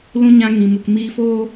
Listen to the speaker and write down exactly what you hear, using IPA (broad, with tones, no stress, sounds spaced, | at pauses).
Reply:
l ũ˧ ɲ ã˧ ŋ ĩ˨ m u˨ k m iː˧ f oː˦